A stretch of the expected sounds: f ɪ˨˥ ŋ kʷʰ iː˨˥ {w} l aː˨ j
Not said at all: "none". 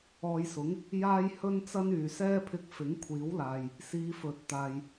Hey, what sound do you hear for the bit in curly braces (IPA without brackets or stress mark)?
w